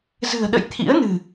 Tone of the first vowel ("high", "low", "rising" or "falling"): low